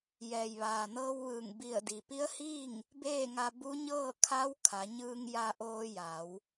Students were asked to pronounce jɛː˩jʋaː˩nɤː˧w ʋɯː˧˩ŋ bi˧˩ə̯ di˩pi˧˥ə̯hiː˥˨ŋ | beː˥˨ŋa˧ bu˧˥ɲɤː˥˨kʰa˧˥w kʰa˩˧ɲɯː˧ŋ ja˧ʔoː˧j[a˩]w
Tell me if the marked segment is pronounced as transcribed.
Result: no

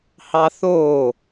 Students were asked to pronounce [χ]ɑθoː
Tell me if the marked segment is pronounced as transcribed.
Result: no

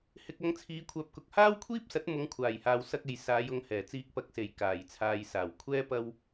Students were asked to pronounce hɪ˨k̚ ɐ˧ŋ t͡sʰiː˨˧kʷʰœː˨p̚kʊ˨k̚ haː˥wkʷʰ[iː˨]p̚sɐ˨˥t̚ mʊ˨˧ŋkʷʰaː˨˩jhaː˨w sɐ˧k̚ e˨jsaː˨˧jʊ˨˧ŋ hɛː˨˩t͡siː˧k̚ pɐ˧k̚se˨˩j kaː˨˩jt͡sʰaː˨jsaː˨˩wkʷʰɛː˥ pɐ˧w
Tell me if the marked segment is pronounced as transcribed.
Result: no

